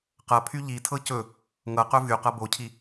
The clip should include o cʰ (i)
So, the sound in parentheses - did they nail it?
yes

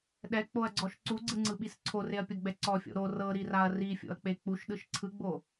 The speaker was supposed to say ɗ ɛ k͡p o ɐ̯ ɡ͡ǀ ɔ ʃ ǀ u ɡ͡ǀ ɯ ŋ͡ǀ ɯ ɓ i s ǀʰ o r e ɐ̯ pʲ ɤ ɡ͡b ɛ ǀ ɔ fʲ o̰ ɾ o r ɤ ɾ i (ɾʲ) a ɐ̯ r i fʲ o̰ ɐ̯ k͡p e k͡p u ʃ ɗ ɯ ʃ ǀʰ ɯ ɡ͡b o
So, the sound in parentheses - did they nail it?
no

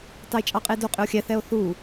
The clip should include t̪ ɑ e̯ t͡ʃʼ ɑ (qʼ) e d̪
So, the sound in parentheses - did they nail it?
yes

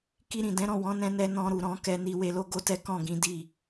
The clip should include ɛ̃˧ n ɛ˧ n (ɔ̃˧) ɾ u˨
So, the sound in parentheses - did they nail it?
yes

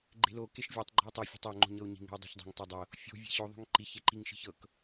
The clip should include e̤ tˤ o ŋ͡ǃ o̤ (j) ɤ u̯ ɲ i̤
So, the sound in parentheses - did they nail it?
no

